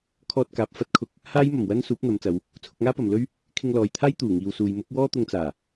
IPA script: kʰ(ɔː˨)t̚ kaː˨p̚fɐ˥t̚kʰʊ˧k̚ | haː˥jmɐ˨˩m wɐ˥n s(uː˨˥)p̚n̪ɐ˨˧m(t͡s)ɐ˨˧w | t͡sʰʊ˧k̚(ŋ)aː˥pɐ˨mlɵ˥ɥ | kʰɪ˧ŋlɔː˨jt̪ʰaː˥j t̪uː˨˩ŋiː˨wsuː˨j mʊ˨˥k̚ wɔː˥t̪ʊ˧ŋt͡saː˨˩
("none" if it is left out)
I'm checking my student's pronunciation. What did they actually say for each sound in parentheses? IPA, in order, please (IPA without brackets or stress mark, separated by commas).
ɔː˧, uː˨˥, t͡s, ŋ